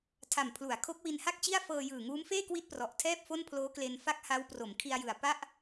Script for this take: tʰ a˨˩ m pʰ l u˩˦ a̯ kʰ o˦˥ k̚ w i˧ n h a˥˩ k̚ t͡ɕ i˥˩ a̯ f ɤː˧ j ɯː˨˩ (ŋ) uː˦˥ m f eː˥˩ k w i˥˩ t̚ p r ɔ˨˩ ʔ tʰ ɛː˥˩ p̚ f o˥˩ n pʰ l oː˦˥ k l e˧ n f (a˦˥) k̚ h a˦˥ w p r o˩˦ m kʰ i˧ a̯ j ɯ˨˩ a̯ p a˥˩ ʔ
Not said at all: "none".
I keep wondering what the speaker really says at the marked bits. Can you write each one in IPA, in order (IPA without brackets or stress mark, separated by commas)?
ŋ, a˥˩